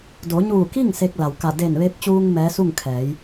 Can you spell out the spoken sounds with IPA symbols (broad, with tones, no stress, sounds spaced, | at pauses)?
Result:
d o˩˧ ɲ uː˧˩ k i˥˨ ŋ s e˧ k̚ l a˩ w k a˧˩ d e˧˩ n ʋ e˧ p̚ t͡ɕ uː˧ ŋ m ɛː˧˥ s u˥˨ ŋ kʰ ɛː˩˧ j